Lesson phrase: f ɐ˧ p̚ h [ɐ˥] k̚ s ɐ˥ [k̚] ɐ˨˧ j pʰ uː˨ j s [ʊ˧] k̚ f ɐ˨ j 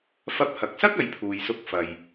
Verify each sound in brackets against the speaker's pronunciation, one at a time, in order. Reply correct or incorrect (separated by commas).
incorrect, correct, correct